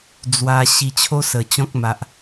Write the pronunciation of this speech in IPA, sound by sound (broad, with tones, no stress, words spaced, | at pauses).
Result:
d͡zwa˧ ɕi˧t͡ɕʰo˦ sə˨˩t͡ɕɔ̃˦k̚ma˨ʔ